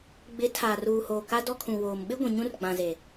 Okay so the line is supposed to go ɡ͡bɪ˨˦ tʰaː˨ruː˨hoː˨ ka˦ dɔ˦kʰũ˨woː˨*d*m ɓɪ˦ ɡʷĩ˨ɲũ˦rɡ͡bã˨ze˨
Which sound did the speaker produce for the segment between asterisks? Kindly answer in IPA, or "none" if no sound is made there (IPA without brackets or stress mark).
none